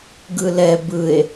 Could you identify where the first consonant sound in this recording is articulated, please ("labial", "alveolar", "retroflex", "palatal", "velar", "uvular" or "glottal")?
velar